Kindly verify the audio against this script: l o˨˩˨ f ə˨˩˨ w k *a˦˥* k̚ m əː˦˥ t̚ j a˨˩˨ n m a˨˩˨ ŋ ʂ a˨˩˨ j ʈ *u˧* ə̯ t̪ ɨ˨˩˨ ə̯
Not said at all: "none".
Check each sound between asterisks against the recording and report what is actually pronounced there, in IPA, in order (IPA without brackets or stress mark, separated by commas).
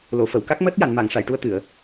a˦˥, u˧